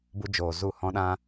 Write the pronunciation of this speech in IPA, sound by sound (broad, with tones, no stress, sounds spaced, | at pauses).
b u˦ d͡ʒ oː˨ z u˦˨ h ɔ̃˦ ɗ ã˦